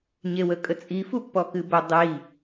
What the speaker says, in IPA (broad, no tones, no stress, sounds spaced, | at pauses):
ɲ e w ə kʼ ə t͡sʼ i f u pː ɔ k ɨ b ə dˤ i